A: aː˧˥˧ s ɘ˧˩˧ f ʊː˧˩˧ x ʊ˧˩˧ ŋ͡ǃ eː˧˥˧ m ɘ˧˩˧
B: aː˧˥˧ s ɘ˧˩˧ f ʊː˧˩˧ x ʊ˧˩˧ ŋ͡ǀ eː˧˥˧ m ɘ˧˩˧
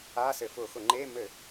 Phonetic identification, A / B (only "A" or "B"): A